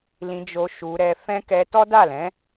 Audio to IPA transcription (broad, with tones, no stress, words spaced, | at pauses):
lĩ˧d͡ʒo˧ ʃu˧ɾɛ˧fɛ̃˦ kɛ˧tɔ˦da˦˨lɛ̃˨˦